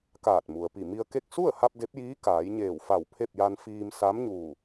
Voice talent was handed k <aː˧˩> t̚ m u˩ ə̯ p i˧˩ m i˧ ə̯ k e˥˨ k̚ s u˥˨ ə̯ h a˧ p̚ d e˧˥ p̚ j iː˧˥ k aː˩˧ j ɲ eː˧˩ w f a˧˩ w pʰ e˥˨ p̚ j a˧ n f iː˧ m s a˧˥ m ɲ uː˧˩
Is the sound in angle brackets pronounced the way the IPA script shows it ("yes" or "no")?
yes